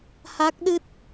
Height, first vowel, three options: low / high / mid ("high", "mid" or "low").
low